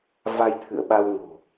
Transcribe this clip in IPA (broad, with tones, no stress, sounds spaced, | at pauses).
v a˧ j t̪ʰ ɨ̰˧˨ ə̯ ɓ a˧ w ŋ o̤˨˩